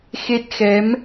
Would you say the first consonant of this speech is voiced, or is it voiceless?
voiceless